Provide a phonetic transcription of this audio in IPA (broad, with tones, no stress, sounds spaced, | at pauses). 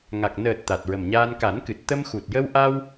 ŋ a˨˩ k̚ n əː˨˩ t̚ t̪ a˨˩ t̚ ɹ ə˨˩ m ɲ aː˧ n k a˨˩˦ n k ɨ˨˩ t̚ t̪ ə˧ m x u˨˩ t̚ j ə˧ w ʔ a˧ w